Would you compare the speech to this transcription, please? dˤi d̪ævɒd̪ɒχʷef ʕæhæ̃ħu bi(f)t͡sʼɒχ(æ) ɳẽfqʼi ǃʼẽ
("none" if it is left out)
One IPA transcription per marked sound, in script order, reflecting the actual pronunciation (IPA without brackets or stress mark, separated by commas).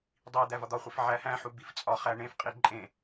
f, æ